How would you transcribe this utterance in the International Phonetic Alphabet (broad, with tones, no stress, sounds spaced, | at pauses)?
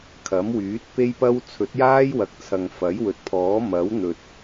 kʰ ɐ˨˥ m w yː˨˥ t̚ p e˥ j p ɐ˥ w t͡sʰ ɵ˨˥ t̚ j aː˥ j w ɐ˨˥ k̚ t͡sʰ ɐ˨ ŋ f ɐ˨˥ j w ɵ˨˥ t̚ pʰ ɔː˨˥ m ɐ˨˥ w n̪ ɵ˨ t̚